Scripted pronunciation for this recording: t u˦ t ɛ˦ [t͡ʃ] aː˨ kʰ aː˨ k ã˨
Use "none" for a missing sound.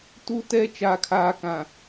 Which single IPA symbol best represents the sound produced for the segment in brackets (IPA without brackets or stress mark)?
t͡ʃ